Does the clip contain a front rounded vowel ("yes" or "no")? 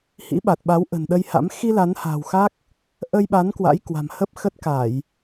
no